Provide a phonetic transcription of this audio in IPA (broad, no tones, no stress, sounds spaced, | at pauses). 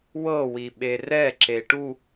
w ɤ w i ɓ e r ɛ ǁ e ʈ u